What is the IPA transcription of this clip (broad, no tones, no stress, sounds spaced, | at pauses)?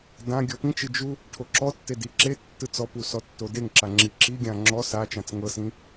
d ã ɡʲ ɔ p ĩ t͡ʃ ɯ d͡ʒ u | ʈʰ o ǁ ɔ tː e d i ǁ e tː ɯ t͡s ɔ p u s ɔ tː o d e ŋ ǁ a ŋ͡ǁ i ǁ i ɡʲ ã ŋ͡ǁ ɔ s a t͡ʃ ã t͡s ŋ ɤ s ĩ